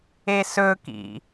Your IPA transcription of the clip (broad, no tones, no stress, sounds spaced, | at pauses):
e s ɵ k ḭ